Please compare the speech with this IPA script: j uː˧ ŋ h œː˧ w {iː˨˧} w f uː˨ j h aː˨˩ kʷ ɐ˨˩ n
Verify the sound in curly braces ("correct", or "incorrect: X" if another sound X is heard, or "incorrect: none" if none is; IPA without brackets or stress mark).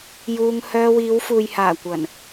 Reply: correct